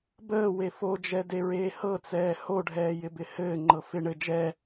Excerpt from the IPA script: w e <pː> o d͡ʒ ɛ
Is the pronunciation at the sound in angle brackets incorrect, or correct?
incorrect